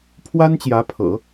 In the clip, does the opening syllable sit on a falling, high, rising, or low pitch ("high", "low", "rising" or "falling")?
high